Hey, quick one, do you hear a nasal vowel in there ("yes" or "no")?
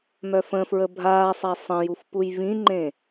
yes